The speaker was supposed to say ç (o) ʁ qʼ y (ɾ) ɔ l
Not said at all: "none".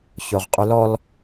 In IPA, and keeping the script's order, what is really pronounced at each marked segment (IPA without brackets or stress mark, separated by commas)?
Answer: o, l